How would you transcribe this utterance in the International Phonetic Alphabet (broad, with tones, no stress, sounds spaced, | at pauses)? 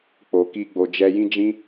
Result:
k͡p o˨ k i˧ ɡ͡b o˨ d͡ʒ ɛ˧ j ĩ˦ d͡ʒ ĩ˦